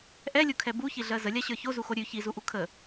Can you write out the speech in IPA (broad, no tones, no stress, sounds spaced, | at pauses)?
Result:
ʔ ɛ lʲ u kʰ ɛ b u ç i ɮ ɜ z ə lʲ a ɕ ə˞ ç o z u x o ɾʲ ʉ ç i z u ʔ u kʰ ə